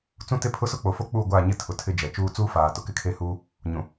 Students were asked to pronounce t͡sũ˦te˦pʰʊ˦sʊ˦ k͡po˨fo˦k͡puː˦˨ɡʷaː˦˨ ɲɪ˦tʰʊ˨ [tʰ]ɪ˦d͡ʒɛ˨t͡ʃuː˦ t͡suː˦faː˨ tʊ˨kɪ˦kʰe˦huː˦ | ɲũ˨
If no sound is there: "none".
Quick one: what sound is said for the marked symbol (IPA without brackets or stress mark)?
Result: tʰ